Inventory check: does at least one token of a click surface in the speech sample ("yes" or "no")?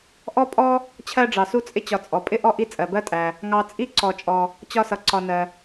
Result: yes